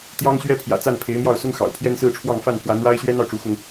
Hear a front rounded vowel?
no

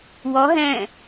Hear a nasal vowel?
yes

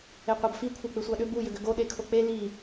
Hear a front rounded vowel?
yes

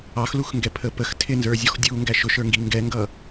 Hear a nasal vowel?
no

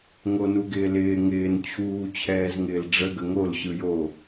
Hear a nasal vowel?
no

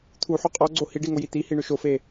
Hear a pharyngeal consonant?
yes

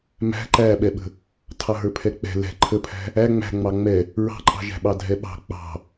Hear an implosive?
yes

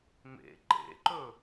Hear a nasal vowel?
no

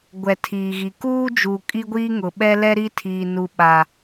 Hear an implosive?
yes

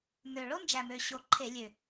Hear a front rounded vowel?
yes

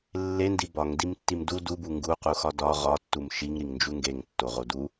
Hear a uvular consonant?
yes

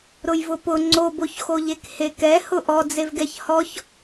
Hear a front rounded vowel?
no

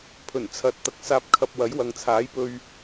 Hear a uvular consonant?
no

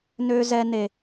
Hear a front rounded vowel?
yes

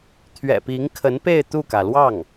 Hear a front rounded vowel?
no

